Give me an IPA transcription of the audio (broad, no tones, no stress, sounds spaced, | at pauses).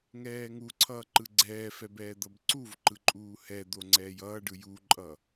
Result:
ŋ ɛː ŋ u ǀʰ ʌː ǃ ɯ ɡ͡ǀ ɛː f ɛ b ɛː d̪ ʌ b ǀ u v ǃ ɯ ǃʼ uː h ɛ d̪ o ŋ͡ǀ ɛː j ʌː ɖ ɯ j u ǃʼ ʌ